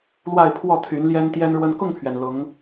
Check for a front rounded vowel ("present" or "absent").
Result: present